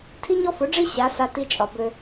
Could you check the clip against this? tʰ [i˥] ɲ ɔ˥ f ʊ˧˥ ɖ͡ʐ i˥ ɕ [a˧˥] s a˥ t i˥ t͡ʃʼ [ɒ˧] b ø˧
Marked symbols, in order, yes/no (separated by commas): yes, yes, yes